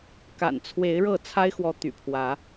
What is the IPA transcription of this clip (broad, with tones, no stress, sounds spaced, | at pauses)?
k a̰˨˩ n t͡sʰ w e˨˦ ɪ̯ ɻ ɤ˥˨ t͡sʰ a˦ ɪ̯ x w ɔ˨˦ t̪ y̰˨˩ pʰ w ä˨˦